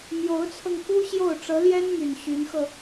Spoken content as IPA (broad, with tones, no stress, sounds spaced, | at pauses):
m j o˧˥ ʊ̯ t͡sʰ ɤ˧ ŋ k u˥ ɕ j o˥˩ ʊ̯ ʈ͡ʂ ɤ˧˥ l j ɛ˥ n m y˨˩ n ɕ y˧˥ n x ɤ˧